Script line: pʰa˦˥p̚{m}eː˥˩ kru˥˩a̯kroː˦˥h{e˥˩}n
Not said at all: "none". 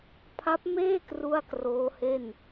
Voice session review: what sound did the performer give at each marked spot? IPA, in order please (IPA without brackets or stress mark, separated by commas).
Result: m, e˥˩